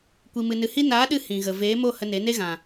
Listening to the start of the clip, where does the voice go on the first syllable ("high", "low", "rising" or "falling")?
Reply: low